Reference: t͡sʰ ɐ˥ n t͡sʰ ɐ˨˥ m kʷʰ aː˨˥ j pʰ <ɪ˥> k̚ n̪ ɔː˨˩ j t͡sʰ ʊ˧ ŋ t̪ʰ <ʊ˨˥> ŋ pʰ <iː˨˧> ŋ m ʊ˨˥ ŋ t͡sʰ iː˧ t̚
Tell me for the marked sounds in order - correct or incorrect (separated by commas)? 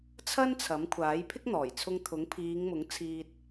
correct, correct, correct